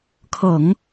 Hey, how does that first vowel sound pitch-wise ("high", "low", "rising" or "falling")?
low